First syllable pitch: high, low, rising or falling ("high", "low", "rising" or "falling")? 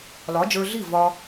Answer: rising